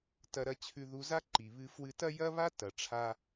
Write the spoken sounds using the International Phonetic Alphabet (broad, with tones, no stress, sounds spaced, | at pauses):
t ɐ˧ ɾ ɐ˧ t͡ɕʰ ʉ˧ ð u˧ z a˦ ǃ i˨ β ɨ˧ f w ɨ˧ t ɐ˦ j ɐ˦ β a˦ t ɐ˨ ʈ͡ʂʰ a˧